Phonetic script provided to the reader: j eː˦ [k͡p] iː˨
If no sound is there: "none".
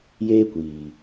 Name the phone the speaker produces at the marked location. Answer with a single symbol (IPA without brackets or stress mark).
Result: kʷ